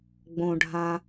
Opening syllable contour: low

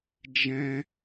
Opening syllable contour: high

